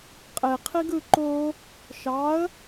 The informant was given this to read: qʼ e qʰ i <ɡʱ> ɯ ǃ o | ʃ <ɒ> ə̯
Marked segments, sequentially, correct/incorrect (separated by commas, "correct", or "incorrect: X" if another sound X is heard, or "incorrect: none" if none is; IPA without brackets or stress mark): incorrect: ɡ, incorrect: ɑ